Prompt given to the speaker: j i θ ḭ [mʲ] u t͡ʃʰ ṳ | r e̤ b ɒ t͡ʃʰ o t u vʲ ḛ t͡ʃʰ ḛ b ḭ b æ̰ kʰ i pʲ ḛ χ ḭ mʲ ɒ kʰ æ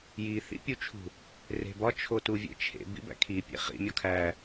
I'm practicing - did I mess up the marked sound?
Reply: yes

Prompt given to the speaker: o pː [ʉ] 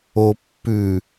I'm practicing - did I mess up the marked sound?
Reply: no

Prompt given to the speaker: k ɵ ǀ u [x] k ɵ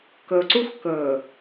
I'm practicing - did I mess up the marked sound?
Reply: no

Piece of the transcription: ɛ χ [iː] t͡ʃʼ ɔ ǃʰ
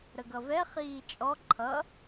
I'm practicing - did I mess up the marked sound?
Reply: no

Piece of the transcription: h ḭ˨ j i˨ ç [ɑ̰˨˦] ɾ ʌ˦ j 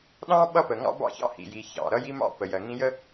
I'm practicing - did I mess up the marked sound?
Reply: yes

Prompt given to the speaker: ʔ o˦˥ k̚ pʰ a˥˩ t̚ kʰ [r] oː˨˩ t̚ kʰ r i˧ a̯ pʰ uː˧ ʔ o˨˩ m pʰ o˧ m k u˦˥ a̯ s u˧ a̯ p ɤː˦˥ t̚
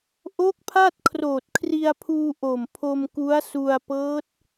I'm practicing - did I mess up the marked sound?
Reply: no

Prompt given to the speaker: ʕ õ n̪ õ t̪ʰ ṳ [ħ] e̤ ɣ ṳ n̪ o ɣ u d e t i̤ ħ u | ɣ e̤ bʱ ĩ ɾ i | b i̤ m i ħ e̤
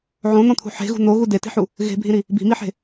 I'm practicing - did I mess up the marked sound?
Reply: no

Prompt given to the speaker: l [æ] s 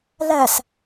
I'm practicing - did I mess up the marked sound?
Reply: no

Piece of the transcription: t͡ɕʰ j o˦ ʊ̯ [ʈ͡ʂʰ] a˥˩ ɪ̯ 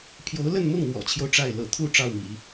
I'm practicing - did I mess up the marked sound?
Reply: yes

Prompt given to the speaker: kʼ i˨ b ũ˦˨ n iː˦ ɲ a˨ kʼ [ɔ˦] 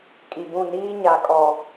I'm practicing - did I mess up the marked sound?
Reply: yes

